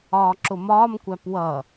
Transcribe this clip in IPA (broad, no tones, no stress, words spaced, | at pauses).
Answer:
ɒːǁʊmɒːmkʷæp wʌ